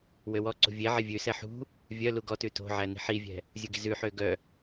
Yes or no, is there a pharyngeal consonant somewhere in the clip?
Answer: yes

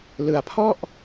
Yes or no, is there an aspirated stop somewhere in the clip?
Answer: yes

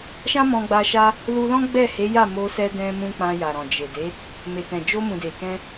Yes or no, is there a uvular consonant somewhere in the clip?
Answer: no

